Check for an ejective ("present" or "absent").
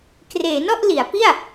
absent